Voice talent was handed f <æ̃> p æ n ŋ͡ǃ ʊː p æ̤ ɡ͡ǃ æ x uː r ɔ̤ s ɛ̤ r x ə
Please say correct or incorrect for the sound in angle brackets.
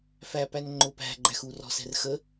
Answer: incorrect